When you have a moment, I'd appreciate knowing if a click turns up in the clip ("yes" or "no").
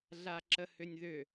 yes